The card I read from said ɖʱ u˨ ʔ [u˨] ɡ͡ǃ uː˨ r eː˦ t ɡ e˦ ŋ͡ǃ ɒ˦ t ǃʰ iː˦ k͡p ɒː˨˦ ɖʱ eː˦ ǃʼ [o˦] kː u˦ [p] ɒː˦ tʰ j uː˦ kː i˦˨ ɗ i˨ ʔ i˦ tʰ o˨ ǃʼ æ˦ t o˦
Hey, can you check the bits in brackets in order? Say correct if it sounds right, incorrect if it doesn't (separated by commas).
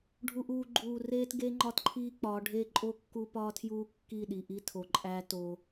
incorrect, correct, correct